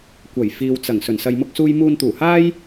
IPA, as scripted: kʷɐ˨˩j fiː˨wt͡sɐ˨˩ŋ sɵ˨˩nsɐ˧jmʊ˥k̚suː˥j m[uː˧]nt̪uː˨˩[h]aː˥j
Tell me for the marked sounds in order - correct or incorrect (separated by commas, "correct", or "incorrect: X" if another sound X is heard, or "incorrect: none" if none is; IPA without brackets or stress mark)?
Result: correct, correct